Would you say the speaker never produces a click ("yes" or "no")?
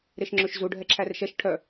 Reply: no